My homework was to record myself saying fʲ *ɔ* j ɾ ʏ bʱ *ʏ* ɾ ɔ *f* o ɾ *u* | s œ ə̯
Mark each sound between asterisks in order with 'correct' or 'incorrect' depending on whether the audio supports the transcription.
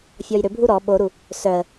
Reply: correct, incorrect: u, incorrect: ɓ, correct

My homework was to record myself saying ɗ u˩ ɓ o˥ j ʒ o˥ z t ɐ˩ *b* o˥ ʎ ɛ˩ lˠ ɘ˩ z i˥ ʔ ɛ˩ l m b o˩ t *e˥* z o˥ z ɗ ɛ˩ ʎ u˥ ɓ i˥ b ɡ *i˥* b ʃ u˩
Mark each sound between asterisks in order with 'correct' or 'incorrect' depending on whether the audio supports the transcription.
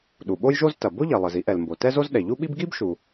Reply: correct, incorrect: ɛ˥, correct

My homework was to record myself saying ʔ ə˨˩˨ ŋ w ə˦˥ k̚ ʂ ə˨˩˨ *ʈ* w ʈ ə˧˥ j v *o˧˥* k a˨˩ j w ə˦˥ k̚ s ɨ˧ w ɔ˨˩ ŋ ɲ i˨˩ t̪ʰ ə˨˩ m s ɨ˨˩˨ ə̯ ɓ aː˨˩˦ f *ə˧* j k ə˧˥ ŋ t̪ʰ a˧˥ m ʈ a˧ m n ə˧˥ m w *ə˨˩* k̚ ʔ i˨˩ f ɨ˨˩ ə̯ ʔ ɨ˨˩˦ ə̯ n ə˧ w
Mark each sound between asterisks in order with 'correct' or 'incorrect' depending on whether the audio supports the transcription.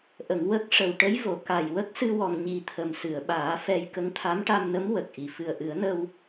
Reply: incorrect: none, incorrect: o˨˩˨, incorrect: ɛ˧, correct

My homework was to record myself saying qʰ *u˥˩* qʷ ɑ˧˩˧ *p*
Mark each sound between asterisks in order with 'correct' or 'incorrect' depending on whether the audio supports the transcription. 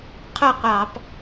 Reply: correct, correct

